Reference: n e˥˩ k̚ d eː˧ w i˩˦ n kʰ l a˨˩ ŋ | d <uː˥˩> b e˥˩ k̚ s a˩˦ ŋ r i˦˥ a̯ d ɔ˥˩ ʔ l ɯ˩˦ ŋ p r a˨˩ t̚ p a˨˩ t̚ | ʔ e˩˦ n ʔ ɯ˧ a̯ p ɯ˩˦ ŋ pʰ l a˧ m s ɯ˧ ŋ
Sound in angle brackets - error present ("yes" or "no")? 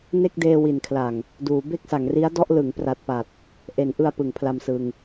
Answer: yes